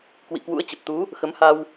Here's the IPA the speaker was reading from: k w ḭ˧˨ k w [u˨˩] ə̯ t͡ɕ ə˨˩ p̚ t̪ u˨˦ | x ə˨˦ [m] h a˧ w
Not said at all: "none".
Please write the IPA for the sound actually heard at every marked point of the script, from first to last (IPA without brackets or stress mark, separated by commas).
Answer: ṵ˧˥, m